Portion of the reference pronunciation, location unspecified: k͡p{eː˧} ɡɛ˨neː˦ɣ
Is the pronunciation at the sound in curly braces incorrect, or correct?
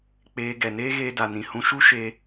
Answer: correct